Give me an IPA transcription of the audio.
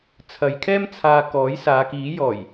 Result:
t͡sʰ ɐ˨˧ j kʰ ɛː˥ m t͡sʰ aː˧ k ɔː˨˥ j s aː˨˧ k iː˨˥ j ɔː˨˩ j

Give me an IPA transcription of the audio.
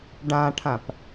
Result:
ɖ ã ʈʰ ã p

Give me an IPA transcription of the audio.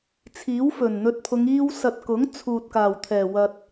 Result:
t͡sʰ iː˨˥ w f ɵ˨˩ n n̪ ɵ˧ t̚ pʰ ʊ˨˧ ŋ iː˧ w s ɐ˨ t̚ k ʊ˨˥ ŋ t͡sʰ uː˨ t̚ k aː˨˩ w t̪ʰ ɛː˨˩ w ɐ˨ t̚

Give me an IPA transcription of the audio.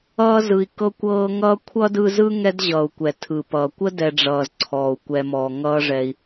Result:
ʌː˦ z ɯ˨ i̯ k ɤ˦ kʷ ɤː˦ ŋ ʌː˥ kʷʰ ʌ˥ d ɯ˦ z ɯ˥ ŋ ɛ˦ d ʑ ʌː˩ u̯ kʷ ɛ˩ tʰ ɯ˩ p ʌː˩ kʷ ə˥ d ɛ˨ ɖ͡ʐ ʌː˩ z ǀʰ ɔː˩ u̯ kʷ ɛ˨ m ɔː˩ ŋ ʌː˦ ʐ ɛ˨ i̯

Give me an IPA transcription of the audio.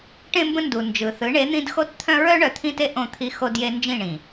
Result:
ʈ ẽ˦ m b ə̃˦ n d u˨ n d͡ʒ ɯ˨ θ ɯ˨˦ ɳ e˨˦ n̪ ĩ˦ d x o˦ t t̪ʰ œ̃˦ ɹ œ˦ ɳ œ˨ t̪ʰ ĩ˦ t e˦ ʔ õ˦˨ t̪ʰ i˦ x o˦ d j e˦ n d͡ʒ ĩ˦˨ ɳ ĩ˨

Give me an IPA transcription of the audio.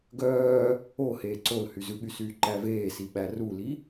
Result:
ɡ œː | o h eː ǀ o l h y z ʉ ɠ y s yː ǃ æ v eː s i ɓ æ r u l i

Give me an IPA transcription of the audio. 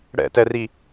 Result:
ɽ ɛ̰ t ɛ r i

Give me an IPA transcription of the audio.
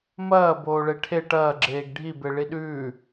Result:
m ɐː b oː ɭ e ʈʰ e ʈ ɐː ɡ͡ǁ eː ɡ ɖʱ i b e ɭ i ɗ ʉː

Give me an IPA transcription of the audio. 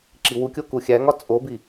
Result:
ǁ i w u kʲ o k u xʲ æ ŋ ɒ t͡sʼ o b i

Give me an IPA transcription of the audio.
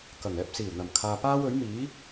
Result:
k ɐ˨˩ ŋ ɛː˧ p̚ s iː˨˩ w n̪ ɐ˨˩ m kʰ aː˨ p aː˥ w ɵ˨˥ ɥ m iː˨˥

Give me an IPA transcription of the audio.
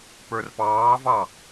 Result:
p ə˞ r p ɑː v ɑ

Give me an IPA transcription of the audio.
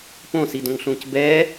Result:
p õ s i d õ ŋ ɬ ũː c b ɛː

